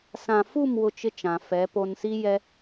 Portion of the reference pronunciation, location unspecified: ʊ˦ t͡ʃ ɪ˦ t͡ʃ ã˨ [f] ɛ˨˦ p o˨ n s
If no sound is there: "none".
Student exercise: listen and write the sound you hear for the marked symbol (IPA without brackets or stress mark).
f